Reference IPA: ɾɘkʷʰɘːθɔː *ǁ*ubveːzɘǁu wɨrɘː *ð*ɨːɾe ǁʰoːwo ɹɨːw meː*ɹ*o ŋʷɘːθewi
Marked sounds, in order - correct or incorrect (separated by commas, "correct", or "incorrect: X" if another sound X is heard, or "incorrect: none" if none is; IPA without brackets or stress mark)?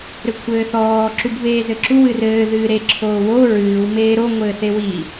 correct, correct, incorrect: ɾ